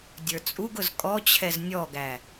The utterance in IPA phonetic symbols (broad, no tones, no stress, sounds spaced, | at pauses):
dʲ ə˞ t͡sʼ u ɡ ʊ z kʼ ɔ t͡ɕʰ ɛ z nʲ ɔ ɡ æ